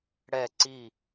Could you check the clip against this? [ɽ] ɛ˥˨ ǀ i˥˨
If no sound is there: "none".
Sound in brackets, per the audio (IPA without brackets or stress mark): ɽ